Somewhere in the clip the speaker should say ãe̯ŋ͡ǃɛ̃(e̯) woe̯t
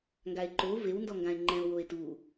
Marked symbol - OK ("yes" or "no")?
no